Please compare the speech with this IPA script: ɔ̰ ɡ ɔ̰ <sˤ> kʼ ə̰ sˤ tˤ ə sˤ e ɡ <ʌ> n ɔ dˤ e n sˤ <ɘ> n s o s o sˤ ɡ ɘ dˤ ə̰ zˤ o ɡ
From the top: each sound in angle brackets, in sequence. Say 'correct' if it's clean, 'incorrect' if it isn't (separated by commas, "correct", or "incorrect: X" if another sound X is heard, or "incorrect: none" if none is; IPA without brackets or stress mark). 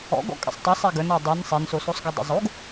incorrect: none, incorrect: ə, incorrect: e